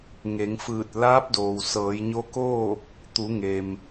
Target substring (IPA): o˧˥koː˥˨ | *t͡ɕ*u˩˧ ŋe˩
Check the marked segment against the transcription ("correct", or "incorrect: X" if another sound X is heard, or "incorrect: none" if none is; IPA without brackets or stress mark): incorrect: t̪